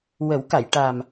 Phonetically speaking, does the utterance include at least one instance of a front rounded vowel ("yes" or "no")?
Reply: no